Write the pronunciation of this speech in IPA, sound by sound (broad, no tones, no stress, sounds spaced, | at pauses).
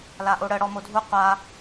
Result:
l a ʔ o ɽ ə ɽ ɔ m o dʱ u qʷ a